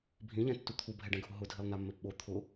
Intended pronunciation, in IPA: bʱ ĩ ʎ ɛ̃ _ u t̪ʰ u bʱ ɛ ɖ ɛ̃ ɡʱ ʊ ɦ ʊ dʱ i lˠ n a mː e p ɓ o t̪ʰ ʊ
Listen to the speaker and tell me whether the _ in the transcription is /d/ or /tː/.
tː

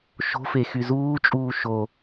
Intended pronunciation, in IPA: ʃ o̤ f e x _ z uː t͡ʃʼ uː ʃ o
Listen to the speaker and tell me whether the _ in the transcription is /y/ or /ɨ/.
y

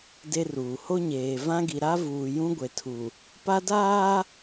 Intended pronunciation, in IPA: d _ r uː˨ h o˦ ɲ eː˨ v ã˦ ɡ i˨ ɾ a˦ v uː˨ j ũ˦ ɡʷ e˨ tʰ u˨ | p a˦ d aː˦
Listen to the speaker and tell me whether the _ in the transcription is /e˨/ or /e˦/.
e˦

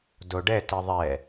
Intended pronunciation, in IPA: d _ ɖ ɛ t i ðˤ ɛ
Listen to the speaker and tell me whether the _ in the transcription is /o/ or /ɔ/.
o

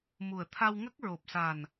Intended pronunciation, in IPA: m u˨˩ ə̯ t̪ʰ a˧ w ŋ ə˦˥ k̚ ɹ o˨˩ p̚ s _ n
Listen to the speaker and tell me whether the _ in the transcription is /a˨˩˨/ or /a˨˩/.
a˨˩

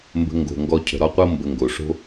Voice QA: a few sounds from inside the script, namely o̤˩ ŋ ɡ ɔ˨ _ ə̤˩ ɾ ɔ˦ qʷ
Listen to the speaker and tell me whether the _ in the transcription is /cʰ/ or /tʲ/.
cʰ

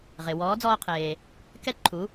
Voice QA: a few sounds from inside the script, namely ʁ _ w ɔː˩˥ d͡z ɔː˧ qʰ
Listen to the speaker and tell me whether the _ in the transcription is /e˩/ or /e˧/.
e˩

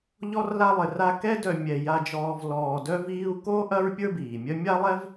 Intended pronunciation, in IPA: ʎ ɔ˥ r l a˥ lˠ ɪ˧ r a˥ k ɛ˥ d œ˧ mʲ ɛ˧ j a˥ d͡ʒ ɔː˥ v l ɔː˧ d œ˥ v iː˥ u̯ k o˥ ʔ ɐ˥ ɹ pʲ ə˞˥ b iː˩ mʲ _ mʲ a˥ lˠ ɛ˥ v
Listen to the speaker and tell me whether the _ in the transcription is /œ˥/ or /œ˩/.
œ˥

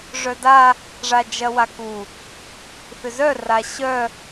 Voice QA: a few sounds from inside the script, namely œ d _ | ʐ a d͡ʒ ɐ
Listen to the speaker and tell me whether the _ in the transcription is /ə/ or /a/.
a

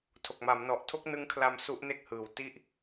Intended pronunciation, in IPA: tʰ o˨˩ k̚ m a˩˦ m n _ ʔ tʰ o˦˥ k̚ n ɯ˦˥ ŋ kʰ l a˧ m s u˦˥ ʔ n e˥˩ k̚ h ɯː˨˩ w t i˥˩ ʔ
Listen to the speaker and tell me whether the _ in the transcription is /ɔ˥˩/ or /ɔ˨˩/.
ɔ˨˩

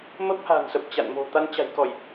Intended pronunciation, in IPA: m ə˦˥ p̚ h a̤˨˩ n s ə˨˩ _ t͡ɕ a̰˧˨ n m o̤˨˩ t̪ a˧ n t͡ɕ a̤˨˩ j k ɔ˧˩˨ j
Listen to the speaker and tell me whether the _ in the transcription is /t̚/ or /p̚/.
p̚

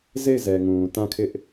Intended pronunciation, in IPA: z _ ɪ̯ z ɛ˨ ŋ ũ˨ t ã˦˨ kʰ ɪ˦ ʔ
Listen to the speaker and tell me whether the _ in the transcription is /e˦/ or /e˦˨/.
e˦˨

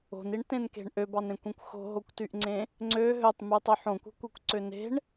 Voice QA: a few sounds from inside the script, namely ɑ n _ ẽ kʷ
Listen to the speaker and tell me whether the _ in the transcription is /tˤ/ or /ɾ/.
ɾ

